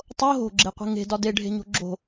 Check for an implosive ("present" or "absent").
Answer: absent